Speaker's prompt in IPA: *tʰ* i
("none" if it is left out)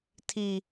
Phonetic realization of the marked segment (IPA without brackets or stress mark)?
tʰ